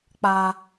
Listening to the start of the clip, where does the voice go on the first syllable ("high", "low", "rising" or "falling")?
low